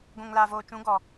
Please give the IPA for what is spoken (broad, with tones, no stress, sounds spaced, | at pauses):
ɡʷ ũ˨ ŋ l a˨ v oː˨ t͡ʃ ũ˨˦ ɡ ɔ˨